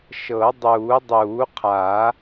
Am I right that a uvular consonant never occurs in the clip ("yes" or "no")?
no